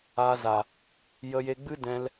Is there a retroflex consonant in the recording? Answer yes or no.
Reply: no